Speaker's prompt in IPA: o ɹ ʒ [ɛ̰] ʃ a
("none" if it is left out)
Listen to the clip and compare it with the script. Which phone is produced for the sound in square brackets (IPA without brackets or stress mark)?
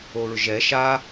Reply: ɛ